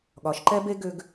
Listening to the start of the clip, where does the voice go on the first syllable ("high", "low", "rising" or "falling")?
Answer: rising